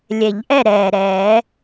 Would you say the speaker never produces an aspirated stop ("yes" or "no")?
yes